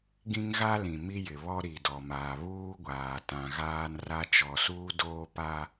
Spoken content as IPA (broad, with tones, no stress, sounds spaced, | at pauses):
ɡ ĩ˦ ŋ ɣ a˦ l ĩ˨ m i˦ j ɪ˨ β ɔ˦ ɾ i˨ d ɔ˨ m aː˨ β uː˦ ɡʷ aː˨ t ã˨ ɣ aː˦ n r a˦ t͡ʃ ɔ˨ s uː˦ d oː˦ p a˦